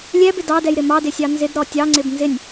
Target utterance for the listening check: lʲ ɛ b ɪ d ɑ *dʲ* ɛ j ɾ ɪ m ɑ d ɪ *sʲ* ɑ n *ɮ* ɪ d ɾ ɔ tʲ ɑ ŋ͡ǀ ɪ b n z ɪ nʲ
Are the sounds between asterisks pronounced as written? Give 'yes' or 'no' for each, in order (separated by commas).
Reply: no, yes, no